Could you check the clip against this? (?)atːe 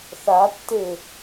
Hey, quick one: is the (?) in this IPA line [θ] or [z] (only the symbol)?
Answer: θ